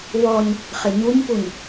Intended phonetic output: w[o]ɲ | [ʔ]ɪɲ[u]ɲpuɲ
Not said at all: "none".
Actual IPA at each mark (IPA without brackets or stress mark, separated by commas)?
ɔ, χ, u